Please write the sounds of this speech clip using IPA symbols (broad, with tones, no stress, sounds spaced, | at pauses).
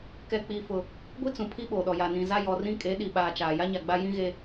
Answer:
k ɛ˦ k͡p iː˦ f ʊ˦ | ɡʷ i˦ t͡s ũ˨ pʰ i˦ ɓ oː˨ ɗ ɔ˨ j a˨ n ĩ˨ z a˦ j ɔ˨ r ĩ˦ kʼ e˨˦ ɗ i˨ ɓ aː˨ t͡ʃ aː˨ j a˦ ɲ a˨ ɡ͡b a˦ j ĩ˦ ɣ e˦